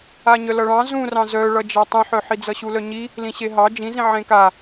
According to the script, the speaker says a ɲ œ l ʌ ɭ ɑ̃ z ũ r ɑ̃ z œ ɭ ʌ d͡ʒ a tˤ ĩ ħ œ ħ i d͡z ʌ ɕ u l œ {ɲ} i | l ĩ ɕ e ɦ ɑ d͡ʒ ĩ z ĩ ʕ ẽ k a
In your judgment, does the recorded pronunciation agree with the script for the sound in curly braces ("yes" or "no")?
yes